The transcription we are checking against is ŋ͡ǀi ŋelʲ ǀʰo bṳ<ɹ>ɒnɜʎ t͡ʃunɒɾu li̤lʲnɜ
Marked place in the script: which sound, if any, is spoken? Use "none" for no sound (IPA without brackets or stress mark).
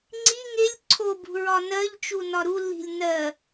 ɹ